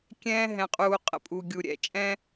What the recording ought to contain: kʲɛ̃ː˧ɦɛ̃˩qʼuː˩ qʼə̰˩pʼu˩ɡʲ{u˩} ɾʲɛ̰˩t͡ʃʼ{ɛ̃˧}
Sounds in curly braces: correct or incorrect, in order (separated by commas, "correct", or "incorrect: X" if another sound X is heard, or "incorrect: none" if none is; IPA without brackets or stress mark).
correct, correct